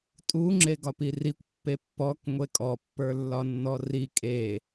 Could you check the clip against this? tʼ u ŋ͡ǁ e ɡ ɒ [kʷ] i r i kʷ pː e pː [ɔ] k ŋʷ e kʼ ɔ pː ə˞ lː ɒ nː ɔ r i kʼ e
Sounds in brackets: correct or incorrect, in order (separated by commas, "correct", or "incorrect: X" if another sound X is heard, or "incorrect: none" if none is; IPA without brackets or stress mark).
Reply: incorrect: p, correct